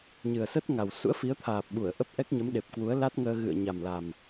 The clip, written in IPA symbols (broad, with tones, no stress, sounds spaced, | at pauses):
ɲ ɨ˨˩ ə̯ s ə˦˥ t̚ ŋ a˨˩ w s ṵ˧˥ ə̯ f i˨˦ ə̯ t̪ʰ aː˨˩ p̚ ɓ u˧˩ ə̯ ʔ ə˦˥ p̚ ʔ ɛ˦˥ k̚ ɲ ə˨˦ m ɗ e˨˩ p̚ k w u˨˦ ə̯ l a˦˥ t̚ ŋ əː˧ ɣ ɨ̰˧˨ ə̯ ɲ a˨˩ m l a˨˩ m